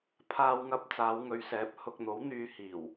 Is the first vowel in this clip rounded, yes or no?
no